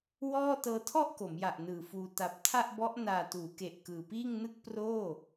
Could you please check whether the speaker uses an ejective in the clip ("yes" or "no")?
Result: no